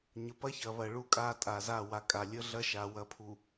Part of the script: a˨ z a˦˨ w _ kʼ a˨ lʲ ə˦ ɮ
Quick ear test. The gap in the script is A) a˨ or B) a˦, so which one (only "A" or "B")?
A